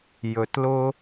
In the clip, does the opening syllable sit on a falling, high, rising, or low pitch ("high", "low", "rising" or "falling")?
low